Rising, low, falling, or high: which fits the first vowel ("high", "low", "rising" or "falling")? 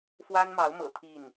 high